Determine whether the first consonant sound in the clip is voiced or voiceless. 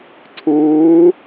voiceless